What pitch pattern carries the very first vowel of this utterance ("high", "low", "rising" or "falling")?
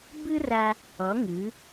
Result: high